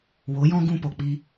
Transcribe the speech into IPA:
wo˨˦jɔ̃˦ ɡũ˧po˨k͡pi˧

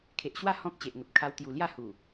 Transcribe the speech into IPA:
kʰe˨ʔɕwa˥˧ hɔ̃˦k̚ t͡ɕe˨ʔŋə˨p̚ kʰa˧wt̪ju˨˩ lja˥˧hu˨˩

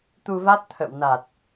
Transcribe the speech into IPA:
t̪u˧va˦˥t̚t̪ʰə̰˧˨w na˨˩t̚

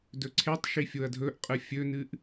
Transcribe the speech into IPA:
dɵǀʰetˤʃi fʲoɐ̯dʱɵʔqʼɨ fʲɵnɨʔ

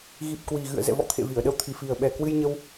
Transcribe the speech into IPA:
ɣi˨˩p̚kwi˨˩ɣɨ̰˧˨ə̯ zɛ̰˧˨vɔ̰˧˨ t̪ʰḛ˧˨vi˧˩ə̯ɗə˧wt̪ʰi˨˩ fi˨˩ə̯ɓɛ˨˩kwɨ˧jɲə˧w

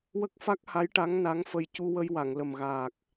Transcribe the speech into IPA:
wə˦˥k̚fa˦˥k̚ ha˧˥jʈa˧˥ŋ na˧˥ŋfə˧j cu˧wə˧jwa˨˩˨ŋ lə˨˩mɣaː˨˩k̚

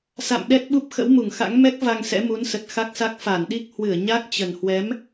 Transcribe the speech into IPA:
sa̰˧˨mɗɛ˦˥t̚ɓu˦˥p̚ xə̰˧˥wmu˧˩ŋxa̰˧˥ŋ mɛ˦˥k̚ va˧ŋsɛ̰˧˥mu˨˦nsə˨˩t̚ xa˦˥k̚sa˦˥k̚ fa˧˩nɗi˦˥k̚ hwɨ˧˩ə̯ɲa˦˥k̚t͡ɕə˨˩nhwɛ˨˦m

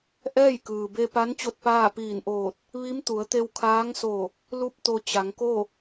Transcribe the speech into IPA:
ʔɛː˥˨jkɯː˩be˧pa˧˥n t͡ɕo˥˨t̚paː˥˨piː˧˩nʔoː˧˩t̚ | ʋi˧˥m t̪u˩˧ə̯t̪e˧wkʰaː˧˥ŋso˧˩ | lu˥˨p̚t̪o˧ t͡ɕa˩˧ŋko˥˨

